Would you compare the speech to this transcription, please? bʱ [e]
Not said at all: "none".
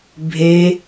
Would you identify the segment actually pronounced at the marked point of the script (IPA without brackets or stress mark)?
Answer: e